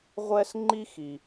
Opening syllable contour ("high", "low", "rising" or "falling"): high